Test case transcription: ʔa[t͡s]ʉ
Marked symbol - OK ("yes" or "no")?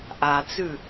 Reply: yes